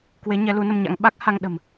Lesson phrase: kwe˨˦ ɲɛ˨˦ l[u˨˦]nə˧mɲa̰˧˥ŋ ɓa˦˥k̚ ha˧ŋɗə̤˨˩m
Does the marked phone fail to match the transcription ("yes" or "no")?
no